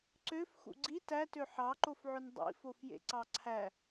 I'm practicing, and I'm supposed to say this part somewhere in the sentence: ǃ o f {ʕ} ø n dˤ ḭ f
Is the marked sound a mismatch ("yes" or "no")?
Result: no